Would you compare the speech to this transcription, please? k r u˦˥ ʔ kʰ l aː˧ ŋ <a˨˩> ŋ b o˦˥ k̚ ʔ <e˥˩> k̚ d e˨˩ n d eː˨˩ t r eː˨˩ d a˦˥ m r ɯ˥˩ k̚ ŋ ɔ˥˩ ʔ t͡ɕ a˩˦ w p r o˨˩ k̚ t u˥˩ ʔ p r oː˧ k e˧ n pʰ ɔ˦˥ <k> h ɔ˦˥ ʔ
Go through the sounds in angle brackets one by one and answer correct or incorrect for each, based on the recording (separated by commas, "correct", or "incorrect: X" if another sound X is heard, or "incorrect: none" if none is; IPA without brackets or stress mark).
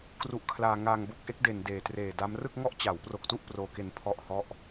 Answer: incorrect: a˧, incorrect: e˦˥, incorrect: ʔ